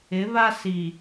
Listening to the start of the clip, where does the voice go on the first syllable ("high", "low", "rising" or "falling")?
rising